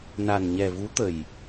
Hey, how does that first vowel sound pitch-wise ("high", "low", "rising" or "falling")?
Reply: low